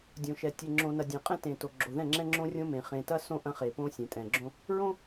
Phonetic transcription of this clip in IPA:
dʲõ˨ʃɛ˨ tʲe˨ŋ͡ǁõ˨nɐ˨dʲɐ̃˨ qʼɛ̃˦tẽ˨to˨ ɡ͡ǁo˨ðɛ̃˦˨ŋ͡ǁɛ̃˦ŋ͡ǁõ˦ rʲõ˦mẽ˨ χẽ˨tɐ˦ sõ˦ ʔɐ̃˦χe˨põ˦ sʲẽ˨tʼɛ̃˨ɡ͡ǁõ˦ | ɹõ˦

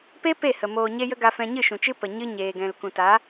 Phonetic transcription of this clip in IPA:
pe˦ pe˦˨hə˨ moː˨ ɲe˦jə˦ɡa˧fɛ̃˧ ɲɨ˦˨ʃũ˨t͡ʃɨ˦ pə˨ ɲɨ˧ ɲeː˨ɡɛ̃˨l kũ˨ta˨˦

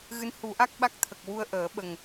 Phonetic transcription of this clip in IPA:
ɣɨ˧˥n hu˨˩˦ʔa˦˥k̚ɓa˦˥k̚t̪ʰə˨˩k̚ wu˧ə̯ʔəː˨˩˦ɓə˨˩ŋ

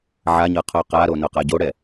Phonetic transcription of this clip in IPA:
ʕaɲɤqʰo qaɾonoqa ɟoɽɛ

